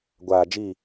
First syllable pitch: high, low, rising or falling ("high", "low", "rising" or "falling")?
low